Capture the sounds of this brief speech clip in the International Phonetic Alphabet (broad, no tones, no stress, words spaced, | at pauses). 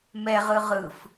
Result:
mɛʁɯ ʁɯf